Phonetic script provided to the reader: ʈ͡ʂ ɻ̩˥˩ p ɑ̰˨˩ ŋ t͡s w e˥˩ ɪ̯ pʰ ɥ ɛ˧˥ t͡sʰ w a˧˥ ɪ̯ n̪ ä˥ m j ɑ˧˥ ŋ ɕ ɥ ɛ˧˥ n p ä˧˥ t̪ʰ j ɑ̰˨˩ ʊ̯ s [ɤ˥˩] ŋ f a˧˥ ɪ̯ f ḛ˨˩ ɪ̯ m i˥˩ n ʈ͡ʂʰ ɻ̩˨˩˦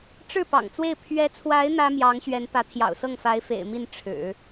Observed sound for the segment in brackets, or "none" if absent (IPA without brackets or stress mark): ɤ˥˩